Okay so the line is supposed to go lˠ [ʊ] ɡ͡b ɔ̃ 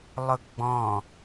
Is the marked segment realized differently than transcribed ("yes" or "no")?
no